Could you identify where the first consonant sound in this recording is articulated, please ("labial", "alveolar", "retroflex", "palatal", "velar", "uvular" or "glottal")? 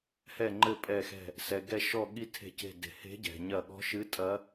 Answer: glottal